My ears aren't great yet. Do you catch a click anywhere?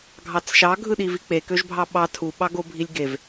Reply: no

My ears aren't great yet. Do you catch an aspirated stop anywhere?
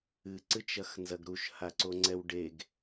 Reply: no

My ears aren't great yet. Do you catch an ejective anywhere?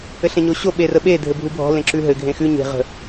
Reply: no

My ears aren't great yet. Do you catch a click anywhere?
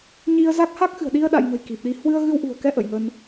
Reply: no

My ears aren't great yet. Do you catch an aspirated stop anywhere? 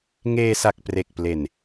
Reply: no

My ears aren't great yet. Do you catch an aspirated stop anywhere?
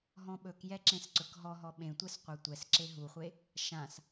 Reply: no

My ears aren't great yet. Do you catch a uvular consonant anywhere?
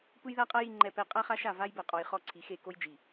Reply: yes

